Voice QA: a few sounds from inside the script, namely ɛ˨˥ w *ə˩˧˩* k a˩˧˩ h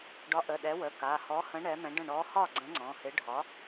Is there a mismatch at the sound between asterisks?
no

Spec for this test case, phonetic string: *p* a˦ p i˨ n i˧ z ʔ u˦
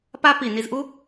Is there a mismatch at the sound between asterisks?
no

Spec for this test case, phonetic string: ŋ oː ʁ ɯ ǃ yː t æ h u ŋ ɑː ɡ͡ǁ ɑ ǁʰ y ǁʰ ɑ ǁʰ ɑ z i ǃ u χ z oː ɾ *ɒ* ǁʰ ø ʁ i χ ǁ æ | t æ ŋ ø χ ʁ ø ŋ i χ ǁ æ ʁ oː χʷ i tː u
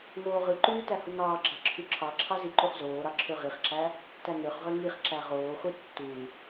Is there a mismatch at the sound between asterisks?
yes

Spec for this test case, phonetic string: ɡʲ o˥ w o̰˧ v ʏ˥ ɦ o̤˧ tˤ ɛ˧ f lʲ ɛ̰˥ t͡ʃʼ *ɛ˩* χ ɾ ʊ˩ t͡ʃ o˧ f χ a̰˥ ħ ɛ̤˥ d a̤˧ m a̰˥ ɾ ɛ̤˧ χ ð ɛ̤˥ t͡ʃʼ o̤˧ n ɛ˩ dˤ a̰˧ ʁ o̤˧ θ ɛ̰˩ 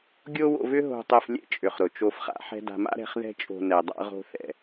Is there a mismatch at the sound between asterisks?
yes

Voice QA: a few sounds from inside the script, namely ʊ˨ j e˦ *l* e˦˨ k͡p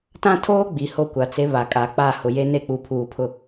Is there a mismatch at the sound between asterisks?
yes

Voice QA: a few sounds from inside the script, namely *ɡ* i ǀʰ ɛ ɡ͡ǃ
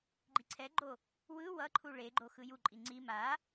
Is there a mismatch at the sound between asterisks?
yes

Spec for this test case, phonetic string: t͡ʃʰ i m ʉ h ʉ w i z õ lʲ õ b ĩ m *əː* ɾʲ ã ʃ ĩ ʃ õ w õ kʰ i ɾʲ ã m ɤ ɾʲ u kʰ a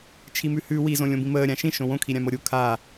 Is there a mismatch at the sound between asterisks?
no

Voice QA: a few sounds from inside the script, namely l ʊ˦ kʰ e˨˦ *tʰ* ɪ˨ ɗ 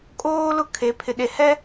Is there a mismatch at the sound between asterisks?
yes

